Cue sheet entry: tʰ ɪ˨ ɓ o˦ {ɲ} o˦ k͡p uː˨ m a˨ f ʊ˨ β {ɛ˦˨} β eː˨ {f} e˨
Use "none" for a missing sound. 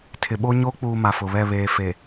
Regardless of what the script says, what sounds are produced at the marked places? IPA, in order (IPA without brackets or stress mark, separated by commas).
ɲ, ɛ˦˨, f